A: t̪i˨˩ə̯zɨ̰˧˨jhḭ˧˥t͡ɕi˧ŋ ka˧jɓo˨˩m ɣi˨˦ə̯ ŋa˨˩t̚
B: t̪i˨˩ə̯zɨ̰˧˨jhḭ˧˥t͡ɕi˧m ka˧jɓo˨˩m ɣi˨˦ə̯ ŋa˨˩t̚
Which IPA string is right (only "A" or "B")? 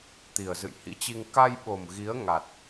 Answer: A